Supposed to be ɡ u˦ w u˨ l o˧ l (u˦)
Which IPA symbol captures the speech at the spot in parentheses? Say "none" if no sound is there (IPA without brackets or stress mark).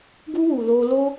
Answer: o˦